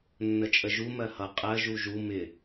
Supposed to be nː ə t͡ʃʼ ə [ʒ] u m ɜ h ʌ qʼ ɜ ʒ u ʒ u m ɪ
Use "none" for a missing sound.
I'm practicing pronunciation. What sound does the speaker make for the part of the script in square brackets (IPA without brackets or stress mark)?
ʒ